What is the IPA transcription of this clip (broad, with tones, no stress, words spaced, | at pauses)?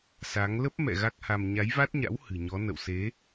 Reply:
sa˨˦ŋ lə˦˥p̚mɛ̰˧˨ ɣa˦˥k̚ha˧m ɲa˨˦jva˦˥t̚ɲa̰˧˥w hɨ̤˨˩ɲɔ˨˦ nə̰˧˨wse˨˦